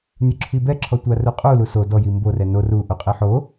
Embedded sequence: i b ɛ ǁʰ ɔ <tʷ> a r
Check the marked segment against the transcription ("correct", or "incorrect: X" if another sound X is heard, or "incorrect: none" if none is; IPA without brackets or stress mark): correct